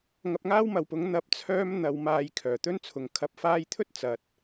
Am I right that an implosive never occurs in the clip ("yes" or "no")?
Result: yes